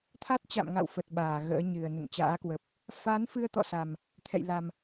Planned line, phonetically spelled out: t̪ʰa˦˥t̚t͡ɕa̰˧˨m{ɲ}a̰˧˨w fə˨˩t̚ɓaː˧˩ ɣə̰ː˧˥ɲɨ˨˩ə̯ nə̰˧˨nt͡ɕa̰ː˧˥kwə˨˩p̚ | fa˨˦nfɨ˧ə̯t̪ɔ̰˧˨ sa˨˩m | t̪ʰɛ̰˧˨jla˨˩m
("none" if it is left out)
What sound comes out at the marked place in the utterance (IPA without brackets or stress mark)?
ŋ